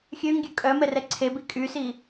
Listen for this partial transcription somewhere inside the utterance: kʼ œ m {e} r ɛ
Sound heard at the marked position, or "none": ɛ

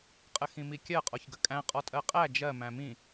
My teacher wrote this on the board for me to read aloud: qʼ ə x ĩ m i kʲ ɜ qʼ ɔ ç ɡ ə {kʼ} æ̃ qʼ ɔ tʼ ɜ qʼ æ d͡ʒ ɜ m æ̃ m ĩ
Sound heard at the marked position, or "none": kʼ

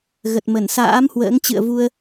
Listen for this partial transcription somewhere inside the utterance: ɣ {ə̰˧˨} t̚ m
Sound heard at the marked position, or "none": ə˨˩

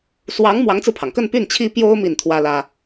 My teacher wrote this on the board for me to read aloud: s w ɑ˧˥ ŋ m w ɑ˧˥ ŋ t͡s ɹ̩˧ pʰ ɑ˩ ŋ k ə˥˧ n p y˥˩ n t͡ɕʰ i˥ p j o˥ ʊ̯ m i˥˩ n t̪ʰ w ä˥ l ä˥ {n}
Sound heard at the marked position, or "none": none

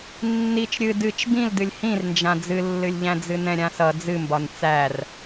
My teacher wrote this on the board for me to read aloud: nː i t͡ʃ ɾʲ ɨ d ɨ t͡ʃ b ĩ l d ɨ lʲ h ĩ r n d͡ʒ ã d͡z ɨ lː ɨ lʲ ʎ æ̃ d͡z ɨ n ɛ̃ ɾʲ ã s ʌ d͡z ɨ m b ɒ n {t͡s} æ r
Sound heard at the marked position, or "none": t͡s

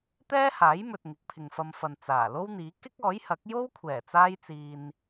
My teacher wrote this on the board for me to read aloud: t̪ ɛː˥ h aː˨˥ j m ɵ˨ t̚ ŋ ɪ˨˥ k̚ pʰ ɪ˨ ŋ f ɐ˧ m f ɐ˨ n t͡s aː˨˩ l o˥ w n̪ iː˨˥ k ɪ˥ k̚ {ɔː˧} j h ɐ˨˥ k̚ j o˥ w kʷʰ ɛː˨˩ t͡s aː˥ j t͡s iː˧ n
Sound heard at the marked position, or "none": ɔː˨˥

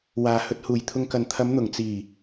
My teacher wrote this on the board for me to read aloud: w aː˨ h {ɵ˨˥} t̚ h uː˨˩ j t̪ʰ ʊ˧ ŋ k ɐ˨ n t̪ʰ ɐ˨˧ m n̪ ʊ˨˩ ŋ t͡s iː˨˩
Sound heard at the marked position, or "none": ɵ˧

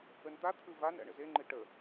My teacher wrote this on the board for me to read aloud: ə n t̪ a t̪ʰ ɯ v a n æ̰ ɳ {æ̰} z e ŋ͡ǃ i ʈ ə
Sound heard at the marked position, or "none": ə̰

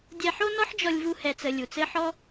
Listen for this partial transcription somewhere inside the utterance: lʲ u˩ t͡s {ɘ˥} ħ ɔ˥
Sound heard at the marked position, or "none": ɘ˥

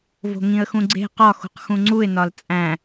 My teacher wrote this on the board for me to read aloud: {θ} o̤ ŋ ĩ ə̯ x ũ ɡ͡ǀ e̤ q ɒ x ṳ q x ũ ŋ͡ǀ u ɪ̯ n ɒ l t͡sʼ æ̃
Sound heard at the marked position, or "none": v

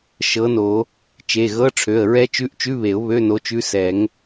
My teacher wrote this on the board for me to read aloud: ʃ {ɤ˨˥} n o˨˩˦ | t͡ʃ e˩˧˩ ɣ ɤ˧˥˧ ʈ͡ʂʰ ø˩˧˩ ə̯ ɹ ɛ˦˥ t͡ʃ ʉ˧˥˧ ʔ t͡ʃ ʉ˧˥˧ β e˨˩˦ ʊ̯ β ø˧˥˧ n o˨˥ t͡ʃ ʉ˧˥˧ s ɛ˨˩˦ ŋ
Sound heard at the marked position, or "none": ɤ˨˥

